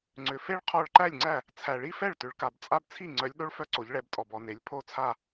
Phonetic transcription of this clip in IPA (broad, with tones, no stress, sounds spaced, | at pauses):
ŋ͡ǀ ʏ˩˧ f e˦ ɭ qʰ ɔ˧˩ ɭ ǃ æ˥˩ lʲ ŋ͡ǀ æ˥˩ | t͡sʰ æ˩ ɭ i˦ f ɛ˥˩ ɭ t ʏ˩˧ ɭ k a˩ b t͡sʼ a˦ b t͡sʰ i˥˩ ŋ͡ǀ œ˩˧ lʲ ɗ o˦ ɭ f œ˦ ǀ o˩˧ ʎ ɭ ɛ˩˧ b tʼ ɔ˩ b ɔ˩ n e˩˧ lʲ pʰ o˥˩ t͡sʰ a˥˩